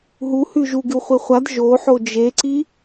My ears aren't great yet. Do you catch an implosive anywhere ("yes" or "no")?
no